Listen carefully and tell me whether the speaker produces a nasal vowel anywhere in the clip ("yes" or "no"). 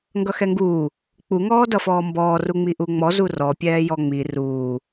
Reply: no